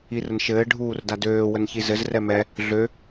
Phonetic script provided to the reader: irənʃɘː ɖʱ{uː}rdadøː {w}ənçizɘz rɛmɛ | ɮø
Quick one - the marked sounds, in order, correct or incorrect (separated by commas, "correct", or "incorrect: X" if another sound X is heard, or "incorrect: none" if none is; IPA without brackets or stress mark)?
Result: correct, correct